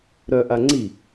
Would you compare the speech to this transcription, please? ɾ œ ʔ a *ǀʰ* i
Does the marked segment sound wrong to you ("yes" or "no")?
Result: yes